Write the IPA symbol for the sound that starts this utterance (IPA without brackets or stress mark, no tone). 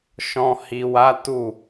ʃ